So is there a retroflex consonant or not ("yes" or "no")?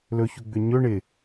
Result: yes